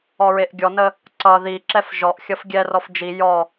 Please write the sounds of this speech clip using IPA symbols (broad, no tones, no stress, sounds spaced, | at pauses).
ɔ ɹ e ʔ ɡʲ ɔ n ə | ǀ ʌ ð i ǁ ɛ f ʒ ɔ ʔ xʲ ʌ f ɡʲ ɛ r ɔ f d͡ʒ i j ɔ